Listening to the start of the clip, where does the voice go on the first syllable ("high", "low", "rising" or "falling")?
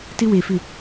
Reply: high